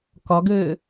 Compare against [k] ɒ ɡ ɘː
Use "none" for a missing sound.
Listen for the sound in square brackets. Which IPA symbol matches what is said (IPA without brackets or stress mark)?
k